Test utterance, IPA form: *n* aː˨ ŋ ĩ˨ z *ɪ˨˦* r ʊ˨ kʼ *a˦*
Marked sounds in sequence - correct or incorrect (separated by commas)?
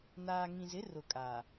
correct, correct, incorrect